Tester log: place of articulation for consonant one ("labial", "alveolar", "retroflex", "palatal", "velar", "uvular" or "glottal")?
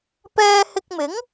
labial